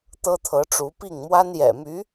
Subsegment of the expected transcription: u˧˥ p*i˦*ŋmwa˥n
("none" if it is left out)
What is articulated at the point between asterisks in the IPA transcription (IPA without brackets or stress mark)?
i˥˩